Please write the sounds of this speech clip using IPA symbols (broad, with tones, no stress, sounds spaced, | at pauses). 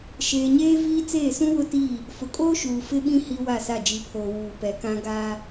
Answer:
ʃ eː˨ ɲ eː˦ v iː˦ t͡s eː˦˨ s ũ˦ w ʊ˦ t iː˦˨ | f ʊ˨ kʼ oː˦ ʃ uː˨ f ɪ˦ ɓ ĩ˦ h i˦ w a˦˨ s a˦˨ d͡ʒ i˨ pʰ oː˨ w uː˨ p ɛ˨ k ã˦ ɡ aː˦